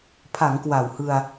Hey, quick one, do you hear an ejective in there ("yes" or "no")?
no